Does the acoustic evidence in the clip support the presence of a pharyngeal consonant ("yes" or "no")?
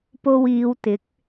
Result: no